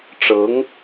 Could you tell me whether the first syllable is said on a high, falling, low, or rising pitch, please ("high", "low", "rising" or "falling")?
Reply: rising